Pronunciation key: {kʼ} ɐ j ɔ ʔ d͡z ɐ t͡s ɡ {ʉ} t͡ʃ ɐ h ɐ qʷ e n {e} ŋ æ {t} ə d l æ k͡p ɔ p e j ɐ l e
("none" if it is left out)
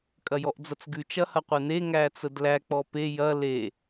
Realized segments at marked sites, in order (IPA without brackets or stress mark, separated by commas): kʼ, ʉ, e, t͡s